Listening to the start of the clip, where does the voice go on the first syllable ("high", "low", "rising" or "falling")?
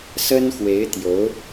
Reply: high